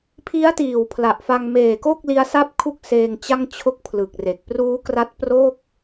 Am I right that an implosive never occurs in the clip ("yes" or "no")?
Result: yes